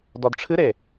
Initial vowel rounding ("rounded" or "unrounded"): rounded